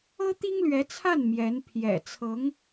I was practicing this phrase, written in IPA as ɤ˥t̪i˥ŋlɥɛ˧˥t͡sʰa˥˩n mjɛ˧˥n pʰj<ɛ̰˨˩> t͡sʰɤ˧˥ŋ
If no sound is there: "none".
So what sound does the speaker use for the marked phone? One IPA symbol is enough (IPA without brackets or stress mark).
ɛ̰˨˩